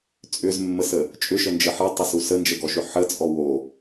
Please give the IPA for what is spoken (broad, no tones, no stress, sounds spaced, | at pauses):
t͡sʼ ʏ z mː ə s ə | t͡ʃʼ ʏ ʃ ə n d͡ʒ ə ħ ə tˤ ʏ s u s ə n d͡ʒ ə ɡ ɔ ʃ ʏ ħ ə t͡sʼ ɔ w o